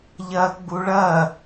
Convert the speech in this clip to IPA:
ʎɐɡ͡bu ɭɐ

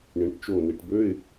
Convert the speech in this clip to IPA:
ɳĩ˩ʈt͡ʃo˧˩ni˩ʈbø˧˥˧ɪ̯

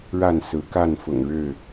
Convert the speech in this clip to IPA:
ɻa˥˨nsɹ̩˨˦ ka˥˨nfʊ̰˨˩ŋɻɻ̩˥˨

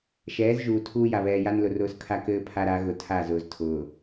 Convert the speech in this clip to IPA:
ʃɛː˨˦zʒuː˨ tʰuː˦ja˨ βɛː˨ja˦nlʊ˨ rʊː˦skʰa˦kɘː˦ pʰa˦ɾa˨˦ɣʊ˨ tʰa˦˨ zʊː˨ztʰʊː˨

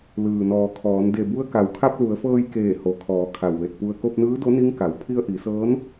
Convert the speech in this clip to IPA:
lɯː˩nɔː˩kʰɔː˩˧n de˧˩bu˧˥ə̯ ka˩wkʰa˧p̚ lu˩˧ə̯fɤː˧jkeː˧˩ ho˩kʰɔː˩˧ kʰa˧˩wʋe˧˩t̚pu˧ə̯ ko˧p̚nɯː˧˥do˧˥ ni˧˥ŋka˩˧w pʰi˧ə̯ʔi˩˧sɤː˧˥n

